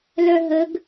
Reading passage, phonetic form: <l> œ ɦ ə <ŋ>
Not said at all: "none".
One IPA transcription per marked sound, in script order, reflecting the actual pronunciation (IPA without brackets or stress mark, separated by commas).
l, ɡ